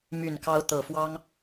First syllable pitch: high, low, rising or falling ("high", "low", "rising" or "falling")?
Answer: low